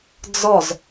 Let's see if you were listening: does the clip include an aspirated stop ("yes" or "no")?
no